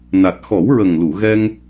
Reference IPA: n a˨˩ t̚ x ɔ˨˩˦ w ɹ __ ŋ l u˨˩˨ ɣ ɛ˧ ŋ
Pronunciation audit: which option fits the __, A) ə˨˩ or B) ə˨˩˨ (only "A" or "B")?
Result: A